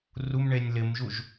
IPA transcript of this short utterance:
rumɳenʲ lɪmʒuʒ

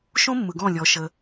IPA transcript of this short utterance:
ʃõ˦mːɯ˨ɡɔ̃˦˨lʲɔ˨˦ ʃə˧

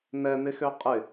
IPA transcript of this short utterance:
n̪ɛn̪ɪxø qʼɪ

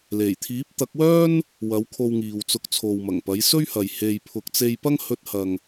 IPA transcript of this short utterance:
le˨˩j t̪ʰiː˨˥p̚t̪ɐ˨˥k̚wœː˥n | wɐ˨˥w kʰo˧wŋiː˨wt͡sʊ˧k̚ t͡sʰo˨wmɐ˨˩ŋpɐ˨˥j sɵ˥ɥhɐ˨j he˧jpʰʊ˧k̚ t͡se˧jpɐ˥ŋ hɵ˧t̚hɐ˨ŋ

